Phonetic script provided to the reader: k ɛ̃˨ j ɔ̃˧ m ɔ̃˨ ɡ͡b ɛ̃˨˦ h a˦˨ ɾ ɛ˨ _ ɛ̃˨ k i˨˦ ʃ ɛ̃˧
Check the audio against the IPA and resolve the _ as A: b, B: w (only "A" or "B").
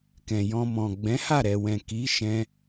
B